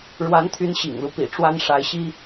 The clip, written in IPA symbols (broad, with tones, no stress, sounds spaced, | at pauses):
ɻ w a˧˥ n t̪ʰ y˧˥ n ɕ ḭ˨˩ ŋ l u˦ p ḭ˨˩ ʈ͡ʂ w a˥ n ʂ a˧˥ ɪ̯ ɕ i˥